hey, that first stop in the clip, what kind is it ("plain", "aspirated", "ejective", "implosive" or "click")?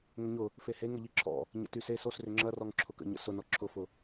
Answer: click